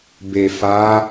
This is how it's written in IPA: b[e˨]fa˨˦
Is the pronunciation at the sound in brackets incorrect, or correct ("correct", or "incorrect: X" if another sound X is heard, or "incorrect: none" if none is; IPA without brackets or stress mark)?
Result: correct